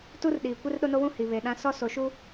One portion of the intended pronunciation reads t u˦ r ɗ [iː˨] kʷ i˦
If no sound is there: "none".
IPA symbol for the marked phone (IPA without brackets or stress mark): iː˨